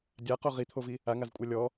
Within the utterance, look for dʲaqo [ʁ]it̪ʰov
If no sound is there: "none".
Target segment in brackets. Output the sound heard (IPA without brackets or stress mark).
ʁ